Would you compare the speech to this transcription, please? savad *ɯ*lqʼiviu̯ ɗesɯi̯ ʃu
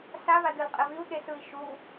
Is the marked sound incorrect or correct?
correct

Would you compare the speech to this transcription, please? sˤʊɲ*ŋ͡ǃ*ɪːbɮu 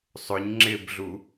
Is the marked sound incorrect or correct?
incorrect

